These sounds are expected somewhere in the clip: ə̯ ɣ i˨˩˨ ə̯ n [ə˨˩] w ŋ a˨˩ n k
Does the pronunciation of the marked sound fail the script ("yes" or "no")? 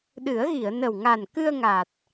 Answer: no